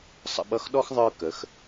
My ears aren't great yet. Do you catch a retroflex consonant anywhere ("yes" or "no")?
no